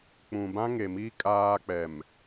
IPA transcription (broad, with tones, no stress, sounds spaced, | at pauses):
k͡p ũ˨ b ã˦ ŋ e˨ m i˦ kʼ aː˦ k͡p ɛ˨ m